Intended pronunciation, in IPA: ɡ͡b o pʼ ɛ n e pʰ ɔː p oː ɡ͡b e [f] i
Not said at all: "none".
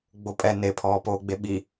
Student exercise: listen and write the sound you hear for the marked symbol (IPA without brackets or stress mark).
ɓ